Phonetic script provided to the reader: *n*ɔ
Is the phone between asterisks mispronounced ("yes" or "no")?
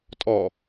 yes